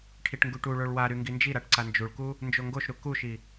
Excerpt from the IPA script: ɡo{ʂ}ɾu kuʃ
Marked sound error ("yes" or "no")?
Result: yes